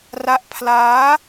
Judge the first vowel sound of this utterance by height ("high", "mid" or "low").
low